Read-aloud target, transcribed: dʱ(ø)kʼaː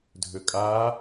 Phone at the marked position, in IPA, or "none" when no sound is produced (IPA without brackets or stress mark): ø